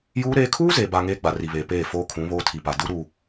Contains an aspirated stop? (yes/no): yes